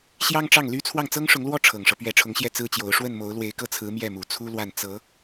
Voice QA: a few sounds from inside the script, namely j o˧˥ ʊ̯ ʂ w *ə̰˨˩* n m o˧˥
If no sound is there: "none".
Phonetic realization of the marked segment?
ə˥˩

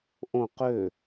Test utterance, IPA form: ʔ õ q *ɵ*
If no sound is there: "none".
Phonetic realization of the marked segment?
ø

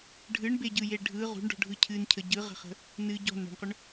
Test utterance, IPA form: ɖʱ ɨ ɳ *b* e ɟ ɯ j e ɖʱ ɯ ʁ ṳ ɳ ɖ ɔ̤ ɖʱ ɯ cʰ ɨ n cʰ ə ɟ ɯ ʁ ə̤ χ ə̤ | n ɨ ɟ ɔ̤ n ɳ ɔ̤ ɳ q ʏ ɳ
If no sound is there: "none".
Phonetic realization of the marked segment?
b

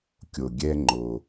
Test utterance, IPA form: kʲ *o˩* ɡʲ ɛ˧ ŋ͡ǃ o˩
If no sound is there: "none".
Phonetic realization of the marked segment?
o˩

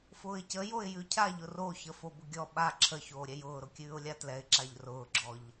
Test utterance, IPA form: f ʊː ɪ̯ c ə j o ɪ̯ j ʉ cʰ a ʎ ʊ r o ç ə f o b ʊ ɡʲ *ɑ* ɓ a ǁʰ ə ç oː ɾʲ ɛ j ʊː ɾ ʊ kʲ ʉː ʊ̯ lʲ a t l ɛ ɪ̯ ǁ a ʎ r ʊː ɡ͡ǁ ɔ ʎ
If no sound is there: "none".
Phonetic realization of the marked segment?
ɔ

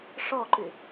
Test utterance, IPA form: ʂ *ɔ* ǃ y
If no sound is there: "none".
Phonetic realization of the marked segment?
ɔ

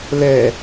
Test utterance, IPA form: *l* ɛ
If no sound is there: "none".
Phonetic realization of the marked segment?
l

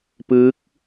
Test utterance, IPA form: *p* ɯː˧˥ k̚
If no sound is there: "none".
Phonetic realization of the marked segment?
p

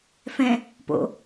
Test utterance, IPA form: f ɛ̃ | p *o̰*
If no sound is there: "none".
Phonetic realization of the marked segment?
o̰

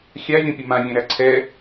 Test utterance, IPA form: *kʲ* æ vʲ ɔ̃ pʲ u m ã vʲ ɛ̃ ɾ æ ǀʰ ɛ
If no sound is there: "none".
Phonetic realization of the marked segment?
xʲ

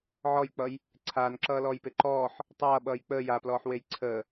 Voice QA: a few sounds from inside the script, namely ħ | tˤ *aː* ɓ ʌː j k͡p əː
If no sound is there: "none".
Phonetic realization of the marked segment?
ʌː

